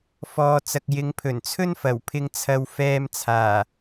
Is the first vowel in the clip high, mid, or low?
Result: mid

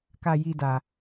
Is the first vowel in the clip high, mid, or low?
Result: low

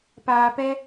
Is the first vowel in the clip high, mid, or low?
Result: low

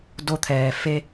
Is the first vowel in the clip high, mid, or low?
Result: mid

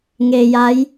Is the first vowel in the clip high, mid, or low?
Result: mid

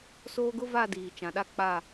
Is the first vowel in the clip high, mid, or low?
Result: mid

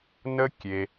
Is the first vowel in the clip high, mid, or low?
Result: mid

